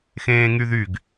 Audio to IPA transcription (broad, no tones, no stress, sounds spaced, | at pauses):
x ẽː ŋ y ð y ɡ